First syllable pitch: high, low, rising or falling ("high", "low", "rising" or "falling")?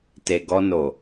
low